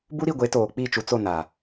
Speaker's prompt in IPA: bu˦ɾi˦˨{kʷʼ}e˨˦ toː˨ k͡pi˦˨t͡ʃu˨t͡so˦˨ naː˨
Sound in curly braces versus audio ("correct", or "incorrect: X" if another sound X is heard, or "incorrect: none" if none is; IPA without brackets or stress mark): incorrect: ɡʷ